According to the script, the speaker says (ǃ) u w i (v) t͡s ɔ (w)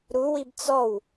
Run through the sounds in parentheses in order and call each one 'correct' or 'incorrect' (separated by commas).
incorrect, incorrect, correct